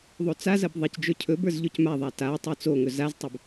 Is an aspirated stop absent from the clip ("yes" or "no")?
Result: no